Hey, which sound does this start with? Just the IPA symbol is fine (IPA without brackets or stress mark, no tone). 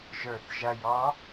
ʒ